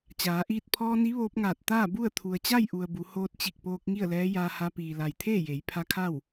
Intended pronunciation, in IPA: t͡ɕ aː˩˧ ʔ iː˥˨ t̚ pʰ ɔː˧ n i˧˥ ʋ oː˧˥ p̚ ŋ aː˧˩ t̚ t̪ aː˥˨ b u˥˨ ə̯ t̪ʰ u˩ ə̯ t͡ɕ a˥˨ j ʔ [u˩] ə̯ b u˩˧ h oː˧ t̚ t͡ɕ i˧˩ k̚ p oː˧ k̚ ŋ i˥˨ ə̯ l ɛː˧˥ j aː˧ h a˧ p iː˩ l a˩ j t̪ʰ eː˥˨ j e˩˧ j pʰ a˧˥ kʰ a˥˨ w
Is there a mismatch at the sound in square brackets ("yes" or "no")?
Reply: no